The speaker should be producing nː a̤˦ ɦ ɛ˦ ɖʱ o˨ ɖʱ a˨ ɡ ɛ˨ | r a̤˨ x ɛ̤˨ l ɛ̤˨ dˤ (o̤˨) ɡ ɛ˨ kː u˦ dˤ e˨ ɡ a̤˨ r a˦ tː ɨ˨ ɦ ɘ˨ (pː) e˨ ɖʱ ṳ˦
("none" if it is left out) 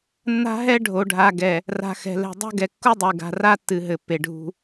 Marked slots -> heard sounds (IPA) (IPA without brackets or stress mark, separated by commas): o̤˦, pː